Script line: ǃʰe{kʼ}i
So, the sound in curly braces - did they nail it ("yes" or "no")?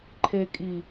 yes